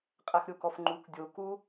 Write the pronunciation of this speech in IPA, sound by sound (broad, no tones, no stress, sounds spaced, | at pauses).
qʼ æ x ɾʲ o k ɔ f ŋ͡ǃ u k dʲ o k u